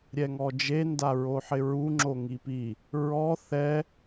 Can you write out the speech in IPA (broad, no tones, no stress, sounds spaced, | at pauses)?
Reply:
ɾʲ ɛ ŋ ɔ d͡ʒ e n d a ɹ o ħ ɪ ɹ u ŋ͡ǁ o ŋ i p i | ɹ ɔ θ ɛ